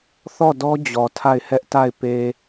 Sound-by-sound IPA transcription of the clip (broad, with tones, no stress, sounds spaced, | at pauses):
θ ɔ˦˨ d ɔ˦ d͡ʑ ɔ˨ tʰ a˦˨ ɪ̯ h ɛ˦ ʔ t a˦˨ ɪ̯ p e˨